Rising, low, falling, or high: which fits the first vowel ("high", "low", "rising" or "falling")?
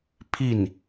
falling